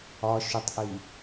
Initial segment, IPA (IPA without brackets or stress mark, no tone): ɒ